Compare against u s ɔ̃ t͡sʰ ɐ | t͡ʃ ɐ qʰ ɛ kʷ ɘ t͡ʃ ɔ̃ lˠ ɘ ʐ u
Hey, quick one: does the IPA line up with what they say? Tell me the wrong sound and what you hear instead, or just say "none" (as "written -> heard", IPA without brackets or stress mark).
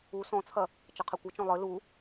ʐ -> l